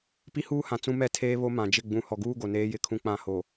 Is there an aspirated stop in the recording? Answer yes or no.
yes